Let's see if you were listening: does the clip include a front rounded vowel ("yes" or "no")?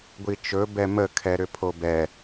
yes